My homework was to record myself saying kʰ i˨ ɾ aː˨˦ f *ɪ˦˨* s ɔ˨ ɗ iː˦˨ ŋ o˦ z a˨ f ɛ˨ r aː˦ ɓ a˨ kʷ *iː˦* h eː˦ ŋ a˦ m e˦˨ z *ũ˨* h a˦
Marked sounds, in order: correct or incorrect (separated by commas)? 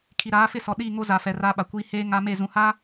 correct, correct, correct